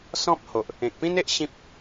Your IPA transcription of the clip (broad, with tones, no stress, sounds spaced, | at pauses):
s ɔ̃˦ p̚ h o˨ ʔ | ẽ˨ k̚ p ĩ˦ n e˦ ʔ ɕ ĩ˦ p̚